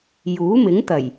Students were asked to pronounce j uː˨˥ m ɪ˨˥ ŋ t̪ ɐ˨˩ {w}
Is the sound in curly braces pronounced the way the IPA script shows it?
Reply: no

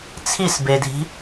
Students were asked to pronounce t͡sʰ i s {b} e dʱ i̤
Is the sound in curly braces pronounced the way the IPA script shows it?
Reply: yes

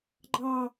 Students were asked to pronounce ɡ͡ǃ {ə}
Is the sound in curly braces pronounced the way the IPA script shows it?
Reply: no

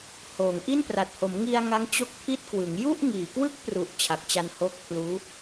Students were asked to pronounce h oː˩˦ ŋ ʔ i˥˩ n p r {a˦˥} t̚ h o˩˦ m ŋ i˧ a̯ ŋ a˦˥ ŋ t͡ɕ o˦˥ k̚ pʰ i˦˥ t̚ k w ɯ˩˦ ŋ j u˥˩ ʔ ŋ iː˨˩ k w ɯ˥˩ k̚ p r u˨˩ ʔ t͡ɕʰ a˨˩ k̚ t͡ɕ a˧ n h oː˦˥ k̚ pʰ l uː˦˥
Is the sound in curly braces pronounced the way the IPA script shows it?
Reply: no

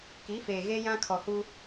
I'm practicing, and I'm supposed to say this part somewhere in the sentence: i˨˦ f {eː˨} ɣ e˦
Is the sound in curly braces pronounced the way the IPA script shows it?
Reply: yes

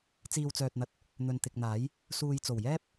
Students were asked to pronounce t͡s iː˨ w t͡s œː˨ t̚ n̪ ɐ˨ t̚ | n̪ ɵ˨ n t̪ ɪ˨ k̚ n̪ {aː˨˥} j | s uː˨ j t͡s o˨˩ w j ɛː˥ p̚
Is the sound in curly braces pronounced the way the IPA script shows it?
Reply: yes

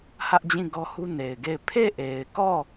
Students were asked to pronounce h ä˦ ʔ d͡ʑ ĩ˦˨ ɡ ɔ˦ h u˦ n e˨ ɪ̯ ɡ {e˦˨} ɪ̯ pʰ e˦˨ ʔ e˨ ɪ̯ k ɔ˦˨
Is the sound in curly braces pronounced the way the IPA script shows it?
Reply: yes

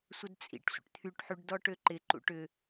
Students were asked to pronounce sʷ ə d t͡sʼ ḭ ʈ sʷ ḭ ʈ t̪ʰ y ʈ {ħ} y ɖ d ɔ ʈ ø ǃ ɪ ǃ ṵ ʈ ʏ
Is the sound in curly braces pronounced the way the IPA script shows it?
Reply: yes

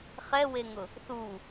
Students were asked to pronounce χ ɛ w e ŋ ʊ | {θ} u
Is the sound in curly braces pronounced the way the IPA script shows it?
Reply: yes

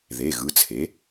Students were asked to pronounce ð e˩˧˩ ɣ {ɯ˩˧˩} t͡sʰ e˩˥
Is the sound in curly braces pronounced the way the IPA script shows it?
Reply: yes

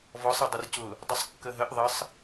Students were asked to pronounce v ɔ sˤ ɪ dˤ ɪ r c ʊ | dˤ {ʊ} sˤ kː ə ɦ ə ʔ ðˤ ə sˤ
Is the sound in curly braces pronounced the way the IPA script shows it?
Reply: yes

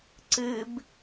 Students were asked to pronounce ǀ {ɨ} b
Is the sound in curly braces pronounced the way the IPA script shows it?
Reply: yes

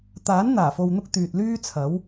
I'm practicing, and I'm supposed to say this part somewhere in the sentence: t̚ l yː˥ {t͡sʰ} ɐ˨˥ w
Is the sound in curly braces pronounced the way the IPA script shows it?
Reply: yes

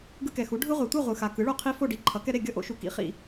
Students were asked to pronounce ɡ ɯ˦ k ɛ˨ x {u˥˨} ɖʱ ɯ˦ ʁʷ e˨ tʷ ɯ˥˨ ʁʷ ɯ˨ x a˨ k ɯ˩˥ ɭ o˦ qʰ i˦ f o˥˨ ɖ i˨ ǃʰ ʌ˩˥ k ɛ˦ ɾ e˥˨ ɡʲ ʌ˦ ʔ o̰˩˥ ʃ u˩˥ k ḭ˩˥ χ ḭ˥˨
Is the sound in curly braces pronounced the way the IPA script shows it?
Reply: no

